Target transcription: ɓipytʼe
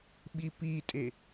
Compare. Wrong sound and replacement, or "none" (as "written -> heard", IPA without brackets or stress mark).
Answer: y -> i